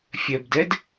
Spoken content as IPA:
fʲ œ b d ɛ d

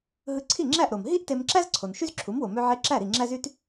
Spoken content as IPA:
ɦ ɯ˧ ǀʰ i˥˩ ŋ͡ǁ æ˥˩ ʔ ɾ o˩ m ɦ i˥ ʔ t e˧ m ǁ æ˥ z ǀʰ o˩ n ʃ y˥ z ǁʰ u˩˥ m w o˩ m ø˧ ʕ e˧ ǁ æ˥˩ ɾ i˥˩ ŋ͡ǁ æ˥ z y˥ t

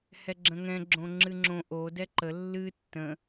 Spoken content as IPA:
h ɛ ɡ͡ǁ ə̃ ŋ ɛ̃ ɡ͡ǁ õ ŋ͡ǁ ɨ ŋ͡ǁ õ ʔ o d ɛ ǃ ə lː ɨ tː ə̃

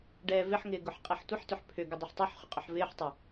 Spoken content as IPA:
ɖ ɛː v ɪ ħ ŋ ɪː ɡ ʊ ħ qʼ ɛ ħ tʷ ɪ ħ t ʏ ħ pʰ ʏ ɡ ʏ dˤ u ħ tˤ o ħ χ ʏ qʼ ʊ ħ v ɪː ħ tˤ ɪ

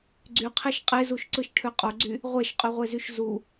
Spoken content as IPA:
ɡ͡ǀ y qʰ e ʃ qʼ e z u ʃ ǀ ɯ ʃ ʈʰ ø qʼ o ɡ͡ǀ y | ʁʷ e ʃ qʼ y ʁʷ e z y ʃ z u

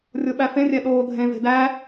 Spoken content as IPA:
rʲ o ɓ æ f ẽ rʲ æ ɗ oː dʱ ẽ v e̤ d æ

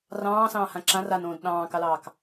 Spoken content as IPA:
r ɑ̃ː s ɑ̃ː h ã ǁ ã r a n õː d ɗ ɑ̃ː k ɑ l ɑː k

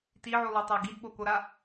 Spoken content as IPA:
t i ʕ u lˠ o tˤ a ɡ i d ɓ o k o ɾ a

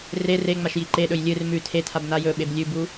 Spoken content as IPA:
r e r e ŋ͡m a ʃ j i ǃ e ɗ ɵ j lʲ ɨ r m ʉ tʰ e tʰ a b n a j ɵ ɓ e b lʲ ʉ b u

